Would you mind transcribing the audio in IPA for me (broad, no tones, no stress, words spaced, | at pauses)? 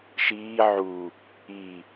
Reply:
ʃiː ʕu | i